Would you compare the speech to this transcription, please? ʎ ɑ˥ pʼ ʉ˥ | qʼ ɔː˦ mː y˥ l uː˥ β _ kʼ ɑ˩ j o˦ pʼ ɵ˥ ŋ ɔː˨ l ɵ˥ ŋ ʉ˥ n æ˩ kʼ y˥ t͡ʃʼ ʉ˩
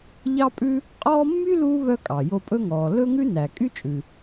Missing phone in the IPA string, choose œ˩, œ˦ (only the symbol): œ˦